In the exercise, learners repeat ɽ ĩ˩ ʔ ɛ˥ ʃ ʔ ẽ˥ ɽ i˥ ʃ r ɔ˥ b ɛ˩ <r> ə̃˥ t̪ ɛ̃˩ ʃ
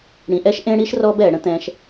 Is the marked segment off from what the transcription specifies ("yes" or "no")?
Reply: yes